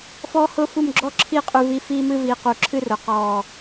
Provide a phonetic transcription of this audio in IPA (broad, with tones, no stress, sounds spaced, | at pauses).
f ɔː˥ h ʊː˥ f u˥˧ m ɡ͡ǁ ɔ˥ ǁʰ i˥˧ qʼ ʉ˧ v i˧ f iː˥ m ɨ˥ v iː˧ q u˧˩ ǁʰ ɨ˥ r ʊ˩˧ q ɔː˧˩